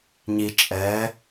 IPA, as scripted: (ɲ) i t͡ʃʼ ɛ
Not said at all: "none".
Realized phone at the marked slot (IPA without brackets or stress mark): ɲ